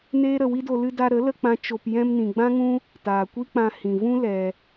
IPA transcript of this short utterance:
neː˦ɾə˧ wi˦do˧ lɨ˧da˧ ɾə˨˦ lə˧k͡pã˧ t͡ʃo˧p jɛ̃˧mnĩ˨ɡ͡bã˦ŋũ˦ | taː˨kʷi˦k͡pã˧ hĩ˨vũ˦ lɛ˧

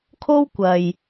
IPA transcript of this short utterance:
kʰo˥wkʷɐ˨j

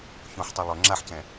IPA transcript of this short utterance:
çõħtˤa lˠɵ ŋ͡ǁaħcɛ̃

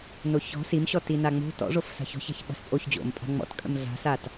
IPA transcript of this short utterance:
noçɔ̤ simɕɔ tinaŋ͡mo̤ tɔ̰ʐof sa̤ço̤ça̤ç ɓa̤spʼoç d͡ʑo̰m pʼa̤ŋ͡mɔ̰t kʼə̰mɮa̤sat

